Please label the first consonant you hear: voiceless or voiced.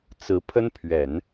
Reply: voiceless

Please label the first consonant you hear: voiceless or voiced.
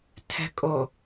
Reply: voiceless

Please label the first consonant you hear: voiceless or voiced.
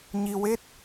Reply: voiced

